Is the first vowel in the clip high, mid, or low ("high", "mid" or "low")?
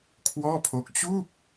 mid